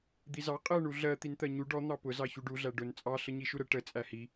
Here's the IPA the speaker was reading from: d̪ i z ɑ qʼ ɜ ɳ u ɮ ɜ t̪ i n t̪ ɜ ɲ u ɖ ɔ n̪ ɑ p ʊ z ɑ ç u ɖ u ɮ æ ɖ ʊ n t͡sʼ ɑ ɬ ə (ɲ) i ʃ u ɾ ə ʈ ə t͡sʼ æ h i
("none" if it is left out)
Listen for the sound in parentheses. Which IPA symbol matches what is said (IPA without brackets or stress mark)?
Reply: ɲ